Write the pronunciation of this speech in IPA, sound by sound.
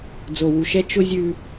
d͡z o˨ w u˨ ʃ ɛ˦ t͡ʃ ʊ˦ zʲ ʉ˦

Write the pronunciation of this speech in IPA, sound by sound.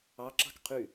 ɑ ǁ ɑ̤ k qʰ y

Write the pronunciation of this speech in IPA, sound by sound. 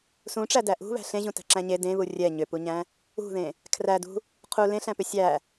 s ũ ʈ͡ʂ æ d æ ʔ ṳ β æ̤ ɬ ẽ ʑ ũ t æ̤ ǁ æ̃ ɲ e d ẽ β u rʲ ɛ ɲ ʏ p u ɲ æ̃ | ṳ ð ẽ | kʰ r æ d ṳ | qʰ u l ẽ ɬ æ̃ p ʏ sʲ æ

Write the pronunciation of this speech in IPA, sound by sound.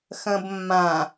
x ɐ̃ b mː ã

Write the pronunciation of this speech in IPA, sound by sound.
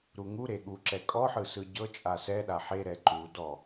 ɾ u ŋ u ɾ e ɠ u ǁ ɛ kʼ ɔ ħ ɯ s ɯ ɟ ɤ t͡ʃʼ a s ɛ ɗ a ħ e ɾ ɛ ǃ u d ɔ

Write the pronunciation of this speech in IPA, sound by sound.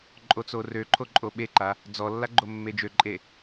ǃʼ o t͡s o r ø ǃʰ o ǃʼ o ɓ e ǃ a | d͡z ɔ lː a ɡ͡ǃ o mː e d͡ʒ ø ǃʼ e

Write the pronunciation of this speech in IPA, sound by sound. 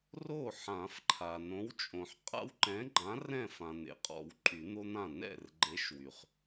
r o˥˩ ħ ã˨˩˦ f ǃʰ a˩ n õ˨˥ w t͡ʃʼ õ˩ ħ qʼ a̰˦ w ǃ ɛ̃˨˥ ɡ͡ǃ ã˨˥ r ɛ̃˥˩ f ã˩ n̪ ḛ˩ qʼ ɔ̰˨˩˦ w ǃʼ y˨˩˦ n̪ o˦ n̪ ã˥˩ n ɛ̰˥˩ r ɡ͡ǃ e˨˥ ʃ w y˩ χ

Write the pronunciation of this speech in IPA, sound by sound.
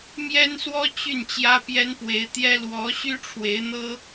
m j ɛ˥ n s w ɔ˥ t͡ɕ y˥˩ n t͡ɕ j ä˥ p j ɛ˥ n p w e˧˥ ɪ̯ t̪ j ɛ˥ l w ɔ˧˥ ɕ y˥ ʈ͡ʂʰ w e˧˥ ɪ̯ n̪ ɤ˥

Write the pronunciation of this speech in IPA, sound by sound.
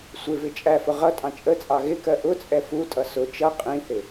sʷ ɪ v ɪ t͡ʃʼ æ f ʊ ʁ ʌ tʼ ɑ̃ t͡ʃʼ ə t͡sʼ ɑ ɣ ɪ k ɜ ʔ ʊ t͡sʼ ɛ f u tʼ ʌ s ʊ t͡ʃ ʌ qʼ ĩ θ ɪ

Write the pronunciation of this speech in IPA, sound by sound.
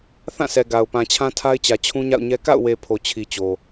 θ ã˦˨ sʰ ɛ˨ ɡ a˨ ʊ̯ p ã˨ t͡ɕʰ ã˦ tʰ a˦ ɪ̯ t͡ɕ ä˨ t͡ɕʰ ũ˦ ɲ a̰˦˨ ʊ̯ ɲ ɛ˦ k a̰˦˨ ʊ̯ w e˨ pʰ o˨ t͡ɕʰ i˨ t͡ɕ o˨

